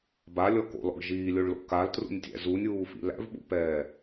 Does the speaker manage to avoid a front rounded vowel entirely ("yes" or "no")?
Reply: yes